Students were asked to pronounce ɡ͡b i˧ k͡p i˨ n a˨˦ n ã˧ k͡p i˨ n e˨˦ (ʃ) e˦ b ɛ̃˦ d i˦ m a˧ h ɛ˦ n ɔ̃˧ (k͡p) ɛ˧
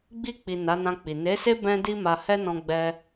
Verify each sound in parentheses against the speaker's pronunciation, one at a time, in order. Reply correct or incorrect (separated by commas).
incorrect, incorrect